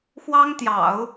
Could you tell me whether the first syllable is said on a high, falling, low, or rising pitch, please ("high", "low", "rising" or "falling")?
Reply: high